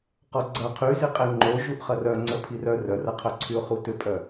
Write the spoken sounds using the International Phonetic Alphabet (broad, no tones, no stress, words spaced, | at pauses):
qɔɡ͡ǀɐ qʰyziqʼe ŋ͡ǃo ʒuʔχɐrœ ŋ͡ǀəpʰirœ rœrɐqʰœǀʰyʊ̯ χutʏpʼœ